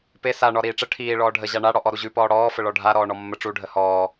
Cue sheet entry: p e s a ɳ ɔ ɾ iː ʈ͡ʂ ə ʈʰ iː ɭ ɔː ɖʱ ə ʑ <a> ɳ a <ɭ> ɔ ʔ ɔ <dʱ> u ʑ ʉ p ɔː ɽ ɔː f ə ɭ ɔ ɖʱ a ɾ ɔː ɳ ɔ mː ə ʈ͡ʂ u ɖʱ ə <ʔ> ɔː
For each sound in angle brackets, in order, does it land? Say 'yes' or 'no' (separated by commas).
yes, no, no, no